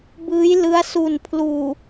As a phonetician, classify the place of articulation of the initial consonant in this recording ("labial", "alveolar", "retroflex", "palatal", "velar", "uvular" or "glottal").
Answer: labial